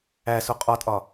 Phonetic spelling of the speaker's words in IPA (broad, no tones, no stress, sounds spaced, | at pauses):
æ s o qʼ ɒ tʼ ɒ